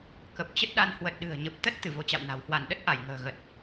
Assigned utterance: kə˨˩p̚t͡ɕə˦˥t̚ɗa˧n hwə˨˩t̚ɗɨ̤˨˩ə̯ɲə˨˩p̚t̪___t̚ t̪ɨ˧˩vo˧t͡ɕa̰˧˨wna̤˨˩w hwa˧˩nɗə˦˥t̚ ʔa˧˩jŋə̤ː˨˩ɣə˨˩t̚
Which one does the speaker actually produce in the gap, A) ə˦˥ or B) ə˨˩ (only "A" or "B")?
A